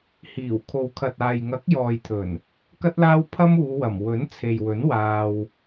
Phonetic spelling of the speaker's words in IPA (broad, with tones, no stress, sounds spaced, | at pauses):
h iː˨˩ w kʰ o˨ w kʰ ɐ˨ t̚ aː˨ j ŋ ɐ˨˥ k̚ j ɔː˨ j t̪ʰ ɵ˨˩ n | k ɐ˥ t̚ l aː˥ w pʰ ɐ˥ m uː˨˧ w ɐ˨˩ m w ɵ˨˥ n t͡sʰ e˨ j w ɵ˨˥ n w aː˧ w